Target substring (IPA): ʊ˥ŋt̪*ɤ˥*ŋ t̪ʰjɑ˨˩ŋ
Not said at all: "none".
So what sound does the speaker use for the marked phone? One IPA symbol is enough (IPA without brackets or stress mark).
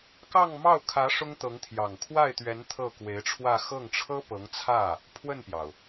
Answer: ɤ˧˥